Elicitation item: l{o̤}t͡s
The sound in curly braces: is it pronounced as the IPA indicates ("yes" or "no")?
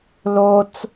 no